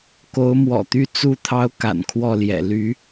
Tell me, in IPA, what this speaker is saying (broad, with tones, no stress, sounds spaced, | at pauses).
k o˧˥ ʊ̯ m w ɔ̰˨˩ t̪ y˥˧ t͡s u˥˩ t̪ʰ ɑ˥ ʊ̯ k a̰˨˩ n kʰ w ɔ˥˩ l j ɛ̰˨˩ l y˧˥